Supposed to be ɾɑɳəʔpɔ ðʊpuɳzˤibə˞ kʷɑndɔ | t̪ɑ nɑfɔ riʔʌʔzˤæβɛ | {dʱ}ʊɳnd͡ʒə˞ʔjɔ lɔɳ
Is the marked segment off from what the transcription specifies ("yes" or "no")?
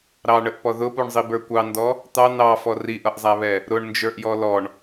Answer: yes